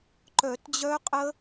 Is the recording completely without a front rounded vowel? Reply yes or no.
no